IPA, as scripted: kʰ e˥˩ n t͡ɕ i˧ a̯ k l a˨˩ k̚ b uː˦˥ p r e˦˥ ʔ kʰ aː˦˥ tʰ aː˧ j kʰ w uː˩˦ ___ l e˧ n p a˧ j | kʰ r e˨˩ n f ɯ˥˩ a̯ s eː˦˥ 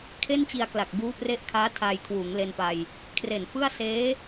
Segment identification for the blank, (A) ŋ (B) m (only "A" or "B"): A